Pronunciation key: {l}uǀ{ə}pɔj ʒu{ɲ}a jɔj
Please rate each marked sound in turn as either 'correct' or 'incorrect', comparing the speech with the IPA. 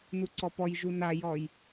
incorrect: n, incorrect: ɔ, incorrect: n

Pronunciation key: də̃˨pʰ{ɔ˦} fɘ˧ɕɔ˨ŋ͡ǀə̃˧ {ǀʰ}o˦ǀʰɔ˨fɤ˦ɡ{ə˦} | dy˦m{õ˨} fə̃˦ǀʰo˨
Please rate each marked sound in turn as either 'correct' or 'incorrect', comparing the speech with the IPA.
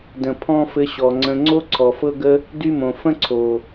incorrect: ɔ̃˦, incorrect: ŋ͡ǀ, correct, correct

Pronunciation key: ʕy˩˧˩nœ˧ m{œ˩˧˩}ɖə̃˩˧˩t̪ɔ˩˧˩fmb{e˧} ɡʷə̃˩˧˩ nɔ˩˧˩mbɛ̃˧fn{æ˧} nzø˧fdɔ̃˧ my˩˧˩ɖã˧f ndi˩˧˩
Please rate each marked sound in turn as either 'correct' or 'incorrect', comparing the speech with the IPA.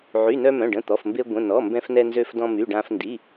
incorrect: œ̃˩˧˩, correct, incorrect: ɛ˧

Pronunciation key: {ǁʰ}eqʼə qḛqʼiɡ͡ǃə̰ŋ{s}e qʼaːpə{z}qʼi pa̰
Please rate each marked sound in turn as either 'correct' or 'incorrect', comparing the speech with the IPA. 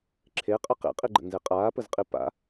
correct, incorrect: z, correct

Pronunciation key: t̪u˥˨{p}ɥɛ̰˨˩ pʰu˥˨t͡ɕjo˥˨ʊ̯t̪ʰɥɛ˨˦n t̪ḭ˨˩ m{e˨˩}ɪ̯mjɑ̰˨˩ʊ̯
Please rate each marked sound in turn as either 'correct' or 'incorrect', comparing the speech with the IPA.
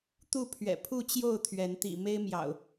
incorrect: pʰ, incorrect: e˦

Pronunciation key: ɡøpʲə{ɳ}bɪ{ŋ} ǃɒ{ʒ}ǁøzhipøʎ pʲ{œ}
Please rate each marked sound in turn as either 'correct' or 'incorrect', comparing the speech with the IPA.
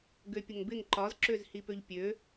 incorrect: ŋ, correct, incorrect: z, incorrect: ø

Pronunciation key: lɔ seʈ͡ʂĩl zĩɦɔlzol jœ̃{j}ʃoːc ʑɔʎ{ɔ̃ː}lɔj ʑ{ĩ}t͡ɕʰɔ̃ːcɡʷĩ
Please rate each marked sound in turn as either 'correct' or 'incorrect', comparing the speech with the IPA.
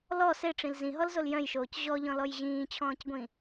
correct, incorrect: ɔ̃, incorrect: ĩː

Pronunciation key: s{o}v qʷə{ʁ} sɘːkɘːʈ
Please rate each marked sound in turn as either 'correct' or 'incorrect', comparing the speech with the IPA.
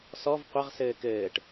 incorrect: ɔ, correct

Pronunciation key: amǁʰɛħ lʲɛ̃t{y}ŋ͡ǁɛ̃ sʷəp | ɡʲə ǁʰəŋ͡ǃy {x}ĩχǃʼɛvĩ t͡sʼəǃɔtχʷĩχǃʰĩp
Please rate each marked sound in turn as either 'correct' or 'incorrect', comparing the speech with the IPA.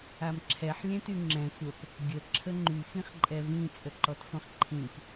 correct, correct

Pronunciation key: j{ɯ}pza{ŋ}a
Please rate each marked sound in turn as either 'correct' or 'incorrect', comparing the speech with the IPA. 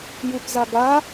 correct, incorrect: ɡ

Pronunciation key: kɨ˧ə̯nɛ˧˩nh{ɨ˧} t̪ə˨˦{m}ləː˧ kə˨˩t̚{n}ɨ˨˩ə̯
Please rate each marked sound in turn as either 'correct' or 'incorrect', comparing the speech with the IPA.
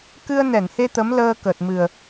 incorrect: e˧, correct, incorrect: m

